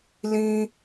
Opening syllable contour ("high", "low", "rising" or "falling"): high